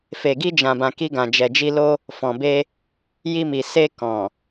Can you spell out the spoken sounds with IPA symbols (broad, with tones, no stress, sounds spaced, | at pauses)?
f e˨ ɡ i˧ d͡ʒ ã˨ b ã˨ k i˧ ɡ ã˨ d͡ʒ ɛ˨ d͡ʒ i˧ l o˦ | f ɔ̃˨ b e˧ | j i˧ m i˨ s e˧ k ɔ̃˨